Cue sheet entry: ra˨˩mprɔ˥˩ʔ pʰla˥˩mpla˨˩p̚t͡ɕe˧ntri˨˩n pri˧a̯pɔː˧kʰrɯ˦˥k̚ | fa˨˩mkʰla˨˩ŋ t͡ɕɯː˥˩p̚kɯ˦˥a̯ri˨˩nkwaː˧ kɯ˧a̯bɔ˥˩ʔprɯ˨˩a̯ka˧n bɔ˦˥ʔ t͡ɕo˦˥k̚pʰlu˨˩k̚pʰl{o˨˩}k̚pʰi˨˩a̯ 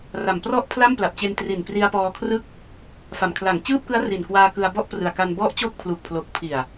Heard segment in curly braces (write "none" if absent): o˨˩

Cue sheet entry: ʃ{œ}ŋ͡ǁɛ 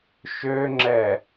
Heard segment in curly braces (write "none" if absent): ø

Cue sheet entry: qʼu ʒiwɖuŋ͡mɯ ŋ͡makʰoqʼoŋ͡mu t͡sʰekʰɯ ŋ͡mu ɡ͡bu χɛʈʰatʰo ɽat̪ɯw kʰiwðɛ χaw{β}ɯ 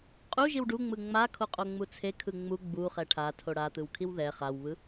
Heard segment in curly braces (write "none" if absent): β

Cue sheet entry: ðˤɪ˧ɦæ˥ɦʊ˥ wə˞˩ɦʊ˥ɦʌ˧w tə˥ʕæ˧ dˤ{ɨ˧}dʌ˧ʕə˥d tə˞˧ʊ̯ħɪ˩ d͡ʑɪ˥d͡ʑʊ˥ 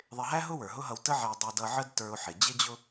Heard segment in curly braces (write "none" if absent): ɛ˧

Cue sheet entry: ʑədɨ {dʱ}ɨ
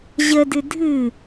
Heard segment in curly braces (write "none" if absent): dʱ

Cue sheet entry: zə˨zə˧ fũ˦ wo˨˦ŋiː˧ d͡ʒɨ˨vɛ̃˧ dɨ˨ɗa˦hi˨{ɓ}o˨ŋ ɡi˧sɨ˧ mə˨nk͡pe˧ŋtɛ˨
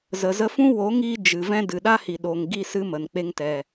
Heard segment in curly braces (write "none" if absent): ɗ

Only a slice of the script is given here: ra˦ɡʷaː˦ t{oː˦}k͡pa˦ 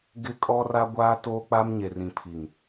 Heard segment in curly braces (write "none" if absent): oː˦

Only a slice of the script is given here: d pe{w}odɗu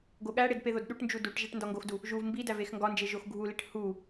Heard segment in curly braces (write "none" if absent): ð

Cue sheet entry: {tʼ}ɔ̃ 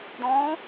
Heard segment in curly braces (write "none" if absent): d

